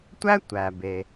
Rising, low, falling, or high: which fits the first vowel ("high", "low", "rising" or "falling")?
high